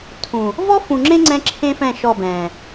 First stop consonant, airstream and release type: aspirated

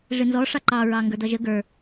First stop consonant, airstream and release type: click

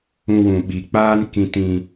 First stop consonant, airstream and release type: implosive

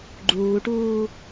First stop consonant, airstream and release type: click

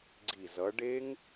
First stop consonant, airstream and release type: click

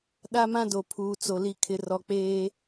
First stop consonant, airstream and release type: implosive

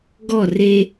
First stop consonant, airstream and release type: plain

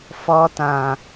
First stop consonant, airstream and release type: plain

